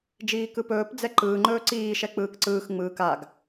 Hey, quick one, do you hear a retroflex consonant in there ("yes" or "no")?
no